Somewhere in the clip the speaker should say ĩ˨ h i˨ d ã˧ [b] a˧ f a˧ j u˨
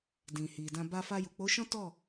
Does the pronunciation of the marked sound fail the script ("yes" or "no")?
no